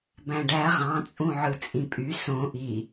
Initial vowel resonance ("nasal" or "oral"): nasal